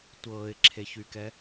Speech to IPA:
tʷ ɤː ɪ̯ ǁʰ e ç y k ɛ

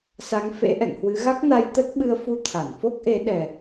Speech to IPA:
s a˨˦ ŋ f ḛ˧˥ ʔ ɛ̰˧˨ ŋ h w ɨ˨˦ ɣ a˦˥ k̚ n a˧ j t̪ ə˦˥ t̚ ɓ ɨ˧ ə̯ f u˧ t̪ʰ a˧˩ n f o˦˥ k̚ ʔ e˨˦ ɗ ɛ˨˩

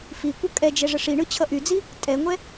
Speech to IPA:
f i kʷ ʌ kʼ ɛ d͡ʒ ɛ ʐ ə ʂ i ɳ ɯ t͡ɕʰ ʌ ʔ y d͡z i | tʼ ɛ ŋʷ ɛ

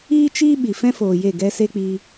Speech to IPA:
iː˦ t͡ʃ iː˦ ɓ i˨ f ɛ̃˦ f oː˨ j e˦˨ ɡ ɛ˦ s e˦ k͡p i˧

